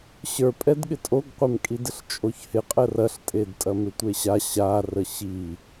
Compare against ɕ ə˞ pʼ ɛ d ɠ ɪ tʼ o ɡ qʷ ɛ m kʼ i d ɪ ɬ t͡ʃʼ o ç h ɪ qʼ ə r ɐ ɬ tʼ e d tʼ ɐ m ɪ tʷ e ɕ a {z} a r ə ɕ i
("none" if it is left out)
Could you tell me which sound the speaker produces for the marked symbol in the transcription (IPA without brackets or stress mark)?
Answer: ɕ